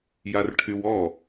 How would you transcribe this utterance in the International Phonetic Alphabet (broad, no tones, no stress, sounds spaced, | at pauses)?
j a r ʈʰ y w ɔ